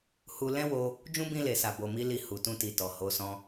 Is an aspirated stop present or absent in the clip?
absent